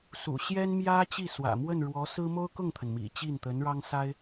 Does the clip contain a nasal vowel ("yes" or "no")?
no